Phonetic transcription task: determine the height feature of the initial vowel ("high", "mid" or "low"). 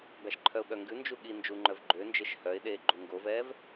low